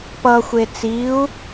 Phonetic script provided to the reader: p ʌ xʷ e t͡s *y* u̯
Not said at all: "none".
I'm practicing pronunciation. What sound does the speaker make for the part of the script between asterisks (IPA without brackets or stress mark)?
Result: i